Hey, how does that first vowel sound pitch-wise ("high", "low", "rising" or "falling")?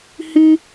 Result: high